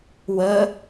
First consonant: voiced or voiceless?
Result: voiced